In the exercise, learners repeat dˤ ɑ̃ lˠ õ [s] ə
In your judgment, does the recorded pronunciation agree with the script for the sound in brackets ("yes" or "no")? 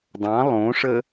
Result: no